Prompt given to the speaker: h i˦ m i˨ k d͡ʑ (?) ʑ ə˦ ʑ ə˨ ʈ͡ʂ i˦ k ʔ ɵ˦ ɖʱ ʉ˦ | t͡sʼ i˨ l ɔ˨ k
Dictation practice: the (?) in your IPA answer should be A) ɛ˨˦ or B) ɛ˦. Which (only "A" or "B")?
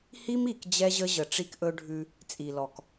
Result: B